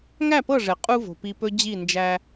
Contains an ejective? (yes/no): yes